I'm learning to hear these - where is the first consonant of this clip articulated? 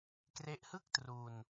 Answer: velum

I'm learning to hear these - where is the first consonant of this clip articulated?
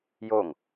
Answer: palate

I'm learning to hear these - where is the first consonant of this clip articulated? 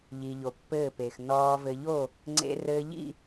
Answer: palate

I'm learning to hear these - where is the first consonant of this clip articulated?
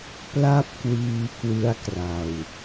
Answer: lips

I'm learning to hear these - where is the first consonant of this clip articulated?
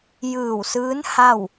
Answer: palate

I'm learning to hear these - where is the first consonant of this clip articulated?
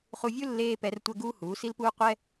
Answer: uvula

